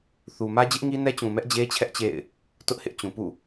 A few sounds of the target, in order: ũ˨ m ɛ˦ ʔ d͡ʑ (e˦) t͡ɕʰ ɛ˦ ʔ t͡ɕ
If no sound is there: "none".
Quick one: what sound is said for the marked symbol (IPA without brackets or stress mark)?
e˦